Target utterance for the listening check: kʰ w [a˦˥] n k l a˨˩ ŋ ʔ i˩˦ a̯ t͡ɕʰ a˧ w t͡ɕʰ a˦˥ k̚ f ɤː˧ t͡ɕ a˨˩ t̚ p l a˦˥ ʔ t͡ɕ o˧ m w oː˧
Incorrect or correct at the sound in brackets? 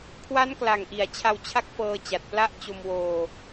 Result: correct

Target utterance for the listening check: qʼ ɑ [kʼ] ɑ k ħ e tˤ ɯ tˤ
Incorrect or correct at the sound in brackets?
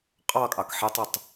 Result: correct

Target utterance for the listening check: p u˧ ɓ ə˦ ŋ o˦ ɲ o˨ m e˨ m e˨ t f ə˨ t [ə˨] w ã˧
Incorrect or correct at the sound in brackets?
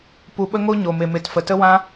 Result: incorrect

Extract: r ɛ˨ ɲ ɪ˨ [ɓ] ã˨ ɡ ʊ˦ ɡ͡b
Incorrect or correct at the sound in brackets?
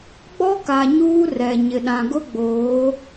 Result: incorrect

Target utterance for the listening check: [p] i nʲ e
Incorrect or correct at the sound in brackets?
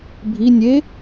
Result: incorrect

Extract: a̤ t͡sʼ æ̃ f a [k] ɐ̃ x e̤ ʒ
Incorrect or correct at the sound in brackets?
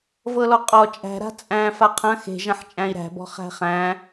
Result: incorrect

